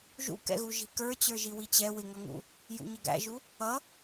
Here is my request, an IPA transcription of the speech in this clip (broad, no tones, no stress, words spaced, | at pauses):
ʒṵkɛ̰ɣu ʒi̤kə˞ t͡ɕə˞ʒiwit͡ɕɛ wɪŋʌŋṵ | jṵɲəɡæ̰ʒu | ʌ